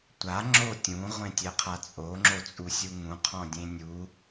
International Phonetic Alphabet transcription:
tʷ a ŋ͡ǁ o tʲ ũ ʁʷ ẽ tʲ ɛ qʰ a t͡sʼ o ŋ͡ǁ o t͡sʼ u sʲ u ŋ ũ qʰ ɔ̃ dʲ ẽ nʲ u

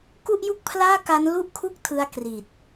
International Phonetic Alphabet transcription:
k u˥˩ ʔ j u˥˩ k̚ pʰ l aː˥˩ k a˦˥ n l u˥˩ ʔ kʰ u˥˩ k̚ tʰ ɯ˧ a̯ k r i˨˩ t̚

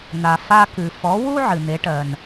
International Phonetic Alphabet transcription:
n̪ a˩ f a˧ k ɨ˩ f ɔ˩˥ w u˥ ʕ ɨ˩ n̪ e˩˥ ʈ ɜ˩ n

